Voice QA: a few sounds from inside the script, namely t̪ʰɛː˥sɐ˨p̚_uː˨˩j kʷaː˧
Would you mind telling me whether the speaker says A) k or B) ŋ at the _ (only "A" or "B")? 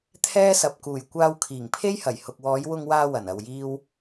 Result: A